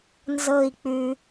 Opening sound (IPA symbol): n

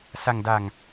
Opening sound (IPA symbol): s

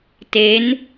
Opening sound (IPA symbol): t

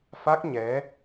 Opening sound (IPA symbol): f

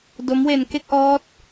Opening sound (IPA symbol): d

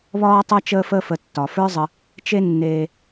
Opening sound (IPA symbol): β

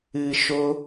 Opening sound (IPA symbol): ɨ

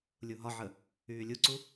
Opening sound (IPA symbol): lʲ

